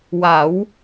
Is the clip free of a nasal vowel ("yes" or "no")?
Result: yes